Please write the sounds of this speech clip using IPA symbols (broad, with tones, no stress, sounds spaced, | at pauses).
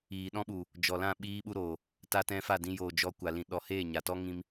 iː˨ ɗ ɔ̃˦ ɓ u˨ | d͡ʒ ɔ˨ l ã˦˨ ɓ iː˦ ɓ u˦ ɾ oː˨ | t a˧ t ɛ̃˧ f a˦˨ d ĩ˧ j oː˨ d͡ʒ ɔ˧ kʷ a˨ l ĩ˨ ɗ ɔ˨ h eː˦˨ ɲ a˨ t ɔ˦ ŋ ĩ˧ m